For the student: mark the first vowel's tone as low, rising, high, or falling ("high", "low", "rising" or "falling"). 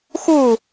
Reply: falling